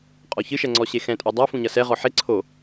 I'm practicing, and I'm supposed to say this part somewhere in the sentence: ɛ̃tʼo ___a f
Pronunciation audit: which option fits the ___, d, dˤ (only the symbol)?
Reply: dˤ